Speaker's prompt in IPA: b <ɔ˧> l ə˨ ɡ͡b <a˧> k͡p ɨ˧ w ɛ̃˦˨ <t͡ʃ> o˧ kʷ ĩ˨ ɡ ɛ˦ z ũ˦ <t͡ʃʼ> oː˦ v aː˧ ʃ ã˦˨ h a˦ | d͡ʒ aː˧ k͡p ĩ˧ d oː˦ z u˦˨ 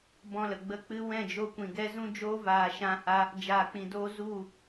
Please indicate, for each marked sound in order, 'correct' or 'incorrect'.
incorrect: ɔ̃˧, incorrect: ə˧, incorrect: d͡ʒ, incorrect: d͡ʒ

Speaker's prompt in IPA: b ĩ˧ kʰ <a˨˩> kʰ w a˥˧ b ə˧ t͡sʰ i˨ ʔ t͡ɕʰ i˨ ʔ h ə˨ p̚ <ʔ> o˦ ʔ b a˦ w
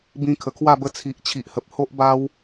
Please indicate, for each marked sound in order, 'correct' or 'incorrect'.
incorrect: ə˨˩, incorrect: h

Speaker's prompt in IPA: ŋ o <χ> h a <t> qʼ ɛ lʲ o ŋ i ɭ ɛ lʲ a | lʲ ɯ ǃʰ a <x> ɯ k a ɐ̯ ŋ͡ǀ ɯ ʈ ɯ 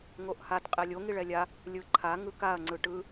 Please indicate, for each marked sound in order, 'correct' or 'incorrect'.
incorrect: ʔ, correct, incorrect: ŋ

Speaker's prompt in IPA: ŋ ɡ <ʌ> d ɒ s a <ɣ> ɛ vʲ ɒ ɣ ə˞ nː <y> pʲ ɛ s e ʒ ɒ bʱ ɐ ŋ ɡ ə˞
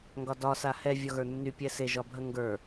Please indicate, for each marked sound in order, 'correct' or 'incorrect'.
incorrect: ɒ, incorrect: h, correct

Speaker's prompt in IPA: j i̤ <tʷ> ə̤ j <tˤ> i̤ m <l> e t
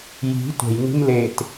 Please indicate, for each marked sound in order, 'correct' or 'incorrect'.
correct, incorrect: n, correct

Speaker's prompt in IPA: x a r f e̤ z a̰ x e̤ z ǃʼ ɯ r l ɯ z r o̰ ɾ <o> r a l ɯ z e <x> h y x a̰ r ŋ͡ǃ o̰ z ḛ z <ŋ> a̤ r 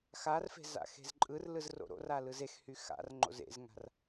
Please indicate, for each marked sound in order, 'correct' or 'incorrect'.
incorrect: o̰, correct, correct

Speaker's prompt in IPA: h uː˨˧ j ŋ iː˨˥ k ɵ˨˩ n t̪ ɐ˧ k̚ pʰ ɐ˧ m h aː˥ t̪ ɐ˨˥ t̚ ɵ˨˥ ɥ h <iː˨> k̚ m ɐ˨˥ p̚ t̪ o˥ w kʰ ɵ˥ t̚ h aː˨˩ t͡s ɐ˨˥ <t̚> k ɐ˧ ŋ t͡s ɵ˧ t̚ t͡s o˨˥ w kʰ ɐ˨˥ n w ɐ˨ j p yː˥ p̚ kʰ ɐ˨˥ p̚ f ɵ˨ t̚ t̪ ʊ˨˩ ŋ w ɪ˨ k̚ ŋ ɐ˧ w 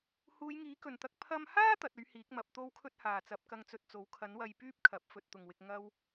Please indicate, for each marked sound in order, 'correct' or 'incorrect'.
incorrect: iː˨˥, incorrect: p̚

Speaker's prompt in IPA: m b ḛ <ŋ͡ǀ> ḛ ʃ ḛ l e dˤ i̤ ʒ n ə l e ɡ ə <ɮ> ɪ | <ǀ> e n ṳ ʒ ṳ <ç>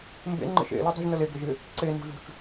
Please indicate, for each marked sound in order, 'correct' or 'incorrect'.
incorrect: ŋ͡ǃ, incorrect: ʒ, correct, incorrect: t͡ʃ

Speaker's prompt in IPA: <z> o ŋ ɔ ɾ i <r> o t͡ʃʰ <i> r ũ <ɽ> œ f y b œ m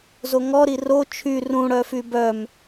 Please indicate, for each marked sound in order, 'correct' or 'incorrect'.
correct, correct, incorrect: y, correct

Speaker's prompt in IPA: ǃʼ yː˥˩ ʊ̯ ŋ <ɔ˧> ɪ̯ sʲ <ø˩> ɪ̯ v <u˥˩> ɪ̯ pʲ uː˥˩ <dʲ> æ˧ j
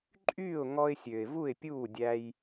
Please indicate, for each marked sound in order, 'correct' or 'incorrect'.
correct, correct, correct, correct

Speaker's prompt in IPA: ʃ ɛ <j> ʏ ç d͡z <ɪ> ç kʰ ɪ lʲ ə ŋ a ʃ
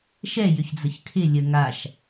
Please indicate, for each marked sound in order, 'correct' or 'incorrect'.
correct, incorrect: ə

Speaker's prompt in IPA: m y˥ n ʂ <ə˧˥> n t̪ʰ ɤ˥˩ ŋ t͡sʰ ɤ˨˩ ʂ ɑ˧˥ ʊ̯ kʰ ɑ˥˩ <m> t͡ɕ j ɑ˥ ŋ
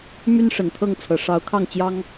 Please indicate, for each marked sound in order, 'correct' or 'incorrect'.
incorrect: ə˨˩, incorrect: ŋ

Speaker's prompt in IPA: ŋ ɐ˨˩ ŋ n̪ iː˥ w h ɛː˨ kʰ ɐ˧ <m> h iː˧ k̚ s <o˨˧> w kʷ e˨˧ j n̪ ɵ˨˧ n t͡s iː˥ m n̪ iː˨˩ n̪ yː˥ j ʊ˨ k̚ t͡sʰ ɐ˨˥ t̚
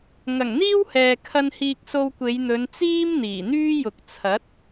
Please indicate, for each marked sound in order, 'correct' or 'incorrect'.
incorrect: n, incorrect: o˧

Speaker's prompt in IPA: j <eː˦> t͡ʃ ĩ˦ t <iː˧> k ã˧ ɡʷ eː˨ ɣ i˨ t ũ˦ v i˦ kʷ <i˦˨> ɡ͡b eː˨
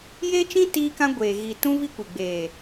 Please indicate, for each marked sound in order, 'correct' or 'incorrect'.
correct, correct, incorrect: i˨

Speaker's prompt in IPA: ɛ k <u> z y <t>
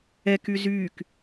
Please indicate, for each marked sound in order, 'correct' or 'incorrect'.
incorrect: y, incorrect: k

